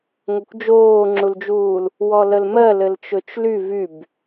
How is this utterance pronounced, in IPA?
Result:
ŋokʷd͡ʒoːŋ͡ǁuld͡ʒuːl | wɔləlmɜ lɘlt͡ʃɵt͡ʃly vyb

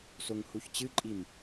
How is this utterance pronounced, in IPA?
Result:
soŋhuçt͡ɕɨǃʼim

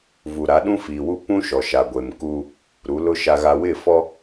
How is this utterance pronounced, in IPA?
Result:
vu˨ ɾa˨˦ɗũ˦fiː˨wu˦ pũ˦ ʃɔ˨ʃa˨ ɡʷe˨mku˦ | ɾu˨˦lʊ˦ ʃa˨ɣa˨wɪ˦˨fɔ˦

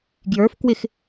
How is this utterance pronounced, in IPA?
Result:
ɡjə˞f kwɪx

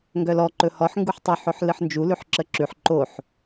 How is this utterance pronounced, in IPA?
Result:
ŋɡœlɔ ǃɵhɔħ ŋɡuħtˤoħɵħ lɨħnd͡ʒu lʉħǁəǁʉħ ǃoħ

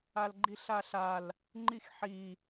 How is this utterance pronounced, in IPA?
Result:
alɡ͡ǃiɬaɬal | ŋ͡ǃixħi

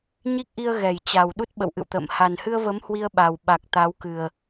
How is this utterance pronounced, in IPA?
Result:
ɲi˦˥k̚ʔi˧ə̯ ɣɛ˨˩jt͡ɕa˨˩wɗu˦˥t̚ ɓə̰˧˨wʔɨ̰˧˨wt̪ə̰ː˧˨m ha˨˩nhɨ˧ə̯və˨˦m hwi˧ə̯ɓa˨˩wɓa˨˩k̚ t̪a˨˦wkɨ˨˩ə̯

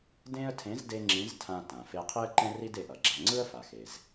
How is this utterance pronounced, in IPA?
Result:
dẽ˥ə̯tʰẽ˧˥z de˥ŋ͡ǁĩ˧˥z tʰã˧tã˩fe˧ qʰi˥ə̯ǃɛ̃˥ ri˥de˩˧ʔʌ˩ɡ͡ǁa˧ ŋ͡ǀɯ˥ə̯fa˩xe˩z

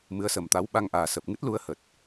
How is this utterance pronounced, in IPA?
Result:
mɨ˨˦ə̯səː˨˩mt̪a˨˦w ɓa˧ŋʔaː˨˩ sə˨˩p̚ŋɨ˦˥t̚lu˨˦ə̯hə˨˩t̚

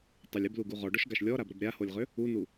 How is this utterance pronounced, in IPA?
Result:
tˤəlʲ əbluɡu ʁɔɖɔʃɡaʃ lʲɔɾabɾəb ɾʲaholʲʁø | unu

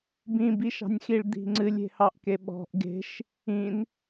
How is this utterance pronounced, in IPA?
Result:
bĩbiʃɑ̤nʲxiɭ d̪i̤ŋ͡ǀɨlʲ e̤hɑʔkeɓɔ̤ʔ ɡe̤ʃ | ĩn

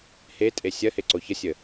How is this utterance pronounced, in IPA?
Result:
hetʼe sʲɐheǀo çəsʲə

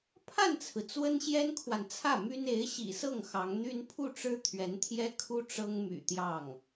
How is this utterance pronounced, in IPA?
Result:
pʰa˥˩nt͡sʰɹ̩˩ t͡swə˥nɕjɛ˥nkʰwa˨nt͡sʰä˥˩ my˥n e˧˥ɪ̯ɕḭ˨˩sɤ˥˩ŋ xɑ˧˥ŋn̪y˥n pʰu˥˩ʈ͡ʂɻ̩˥ t̪ʰɥɛ˧˥nt̪ʰjɛ˥ kʰu˥ ʈ͡ʂɤ˥ŋmy̰˨˩t̪jɑ˥˩ŋ

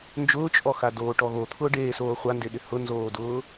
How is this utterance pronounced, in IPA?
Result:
nd͡ʒʊːt͡ʃʼɔxa doːʈɔɣo t̪ʰʊːɖeːsoː χʷandeɗɪ hʊnzoːdʊː

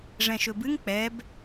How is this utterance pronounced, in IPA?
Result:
ʐɛ̃ʃɵbɨŋ k͡pɛb

